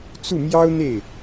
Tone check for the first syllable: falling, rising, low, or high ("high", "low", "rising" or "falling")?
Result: falling